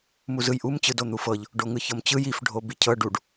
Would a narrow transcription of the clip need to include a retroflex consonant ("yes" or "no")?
yes